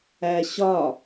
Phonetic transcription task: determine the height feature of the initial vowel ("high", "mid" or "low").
low